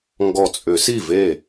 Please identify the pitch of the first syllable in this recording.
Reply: low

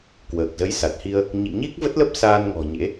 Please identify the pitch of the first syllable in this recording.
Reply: low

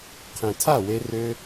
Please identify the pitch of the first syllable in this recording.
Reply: low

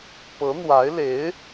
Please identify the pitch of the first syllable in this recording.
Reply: rising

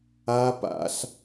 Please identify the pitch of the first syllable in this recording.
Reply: high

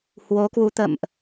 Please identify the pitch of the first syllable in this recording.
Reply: rising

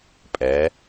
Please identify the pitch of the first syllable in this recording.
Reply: rising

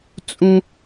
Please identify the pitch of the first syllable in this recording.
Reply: high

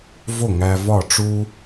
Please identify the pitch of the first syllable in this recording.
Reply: falling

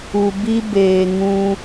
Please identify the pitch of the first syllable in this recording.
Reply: low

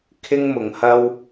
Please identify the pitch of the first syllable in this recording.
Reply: high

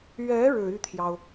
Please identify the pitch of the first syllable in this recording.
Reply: rising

